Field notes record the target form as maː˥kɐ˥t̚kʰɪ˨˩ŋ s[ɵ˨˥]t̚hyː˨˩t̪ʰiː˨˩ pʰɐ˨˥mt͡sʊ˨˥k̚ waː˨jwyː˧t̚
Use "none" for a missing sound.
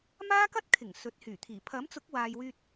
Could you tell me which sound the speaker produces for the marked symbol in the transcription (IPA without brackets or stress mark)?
ɵ˨˥